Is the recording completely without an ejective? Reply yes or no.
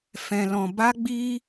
yes